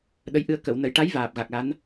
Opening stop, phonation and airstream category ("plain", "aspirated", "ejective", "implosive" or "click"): implosive